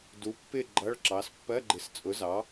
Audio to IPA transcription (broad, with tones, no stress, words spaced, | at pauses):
du˨˥pːɪ˦˨ ɡ͡ǃʌ˧˥˧ɭǁɑ˨˥s pːɜ˧˥˧ɡ͡ǃɪ˨˥st͡sʼʊ˨˥zɑ˨˥